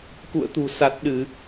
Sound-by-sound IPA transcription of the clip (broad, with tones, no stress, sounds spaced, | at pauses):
k ṵ˧˨ ə̯ t̪ ṳ˨˩ s a˨˩ t̚ ɗ ɨ˧˩˨